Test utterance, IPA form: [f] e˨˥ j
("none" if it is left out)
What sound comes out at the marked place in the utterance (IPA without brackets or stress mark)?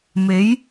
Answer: m